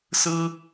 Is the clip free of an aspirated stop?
yes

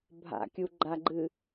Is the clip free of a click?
no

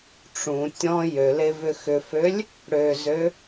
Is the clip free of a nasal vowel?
no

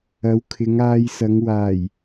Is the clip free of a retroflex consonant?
yes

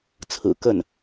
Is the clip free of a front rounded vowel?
yes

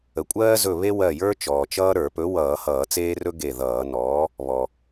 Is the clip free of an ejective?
no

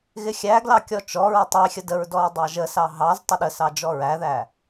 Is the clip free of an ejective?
yes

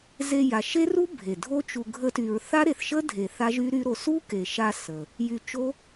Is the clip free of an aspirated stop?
yes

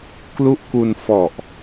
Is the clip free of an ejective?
yes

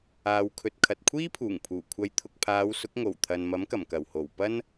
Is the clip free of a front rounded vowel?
yes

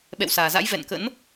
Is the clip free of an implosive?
no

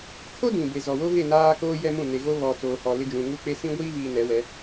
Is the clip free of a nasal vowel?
no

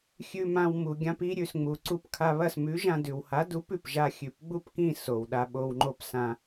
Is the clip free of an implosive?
no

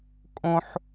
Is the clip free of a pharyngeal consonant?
no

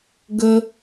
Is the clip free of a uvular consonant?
yes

